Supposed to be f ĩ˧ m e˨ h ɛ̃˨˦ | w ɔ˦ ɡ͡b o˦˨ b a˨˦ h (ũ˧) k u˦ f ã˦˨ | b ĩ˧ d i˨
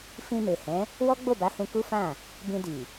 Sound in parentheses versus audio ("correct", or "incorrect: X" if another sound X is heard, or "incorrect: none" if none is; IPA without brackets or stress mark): correct